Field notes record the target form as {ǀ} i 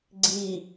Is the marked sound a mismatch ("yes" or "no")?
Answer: yes